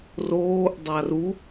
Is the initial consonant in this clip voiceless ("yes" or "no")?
no